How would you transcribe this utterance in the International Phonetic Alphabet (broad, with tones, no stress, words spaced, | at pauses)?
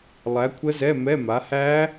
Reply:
lˠæ˨˥kʷʰə˦˥zɛ˧˥˧ mɛ˧˥˧ma˨˥ hæ˦˥